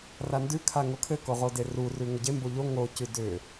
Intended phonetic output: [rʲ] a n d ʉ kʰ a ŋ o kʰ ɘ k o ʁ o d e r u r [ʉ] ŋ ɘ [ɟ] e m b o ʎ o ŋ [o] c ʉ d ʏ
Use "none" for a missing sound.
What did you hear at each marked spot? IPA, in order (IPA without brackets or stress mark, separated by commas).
r, ʉ, ɟ, o